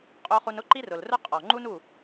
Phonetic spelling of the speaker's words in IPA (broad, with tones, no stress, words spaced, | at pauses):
qʼo˧χu˧nʊ˦ ǃi˦rʊ˨lrʊ˦ qʼɔ˨ŋ͡ǃu˦nu˦˨